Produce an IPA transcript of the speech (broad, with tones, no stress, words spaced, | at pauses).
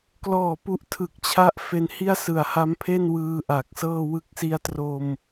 klɔː˨˩ pu˦˥ʔtʰɯ˨˩k̚t͡ɕʰa˥˩ʔfe˧n hi˥˩a̯sɯ˨˩a̯ha˦˥mpʰe˥˩n wɯː˧ʔa˨˩k̚sɤː˥˩ wɯ˦˥k̚si˦˥a̯tro˧m